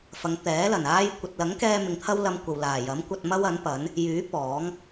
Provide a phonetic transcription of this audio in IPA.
f ɐ˨˧ ŋ t̪ ɛː˨˥ l ɐ˨˩ n aː˧ j kʷ ɐ˨ t̚ l ɐ˨˥ ŋ k ɛː˧ m ɪ˨˧ ŋ t̪ʰ ɐ˥ w l ɐ˧ m kʷ ɐ˨ w l aː˨˩ j ɐ˨˥ m kʷ ɐ˧ t̚ m ɐ˥ w ɐ˨˥ n p ɐ˨˥ n | j yː˨˥ p ɔː˨˥ ŋ

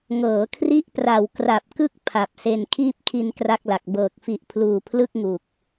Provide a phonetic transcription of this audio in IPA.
ŋ ɤː˩˦ kʰ r i˦˥ ʔ p r a˨˩ w k r a˨˩ p̚ k ɯ˥˩ k̚ pʰ a˨˩ p̚ s e˧ n kʰ iː˥˩ p̚ kʰ i˧ n k r a˥˩ k̚ l a˨˩ k̚ b ɤː˨˩ k̚ f i˨˩ ʔ pʰ l uː˨˩ pʰ l ɯ˥˩ k̚ ŋ u˨˩ k̚

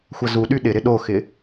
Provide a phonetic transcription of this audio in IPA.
xʷ ɐ z u ɗ y ɗ ɪ ɾ ɪ ɗ o x ɪ

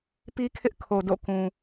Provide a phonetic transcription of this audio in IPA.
p i˦ kʰ ɪ˦ ʔ kʰ o˨ d o̰˦˨ k ũ˨

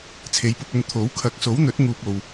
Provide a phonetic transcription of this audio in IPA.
t͡sʰ e˨˧ j p ʊ˧ k̚ ɵ˧ n t̪ʰ o˨˥ w kʰ ɐ˨˥ k̚ s o˨˥ w n̪ ɵ˨˥ t̚ ŋ uː˧ p̚ o˨ w

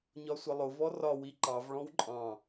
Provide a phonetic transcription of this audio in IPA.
ɲ ɒ sʷ ʌ lˠ ʊ v ɔ r ɒ w i ǃ ɑ v ɭ ɔ̃ w ǃʼ ɑ̃

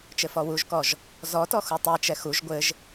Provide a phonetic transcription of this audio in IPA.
t͡ʃ ɘ f ɔ w u ʒ k ɔ ʒ | z ɔ t ɔ x u tˤ i t͡ʃ ɛ x u ʒ ɡʷ ɘ ʒ

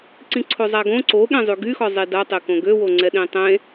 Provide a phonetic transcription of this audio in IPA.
ǀ ĩ ǀʰ o zˤ a ɡ õ ǀ o ɠ ɛ̃ zˤ y ɡ y x ɔ zˤ i d a tˤ e k õ ɡ ø w o ŋ͡ǀ ɛ ɗ ĩ tˤ ẽ

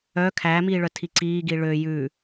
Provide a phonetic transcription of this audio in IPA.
œ kʰ æ m iː ɭ œ tʰ i ǀ iː ɡ i ɭ ø j ʉ

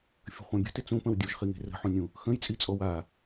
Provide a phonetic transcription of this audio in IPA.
fʲ ə̤ χʷ ã bʲ ə̤ t ɪ t͡s ũ p ə̃ w dʲ u ʒ χ i ŋ e̤ r ə̤ ħ ũ nʲ ũ | x ə̃ j t͡sʼ i t͡sʼ ɔ w a

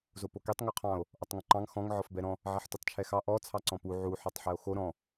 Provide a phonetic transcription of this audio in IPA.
z o p o k e tˤ ŋ o qʰ ɑ̃ o̯ | ʔ ɔ tˤ ŋ õ ǃ ɑ̃ ŋ x ɔ̃ ŋ ʕ ɔ f b ɛ ɾ ɔ̃ | ʕ ɛ ħ t u tˤ t͡ʃʰ ɛ x ɑ ʔ ɔ t͡sʰ ɑ ǀ ɔ̃ p u ʕ u ħ ɔ tˤ ħ ɛ o̯ x o ɾ ɔ̃

